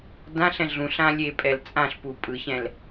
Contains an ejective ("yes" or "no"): yes